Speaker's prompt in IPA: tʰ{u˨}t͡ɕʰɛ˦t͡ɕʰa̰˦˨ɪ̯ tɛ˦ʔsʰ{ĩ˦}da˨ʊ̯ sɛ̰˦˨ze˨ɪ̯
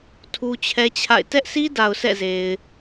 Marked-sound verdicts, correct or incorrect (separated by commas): incorrect, incorrect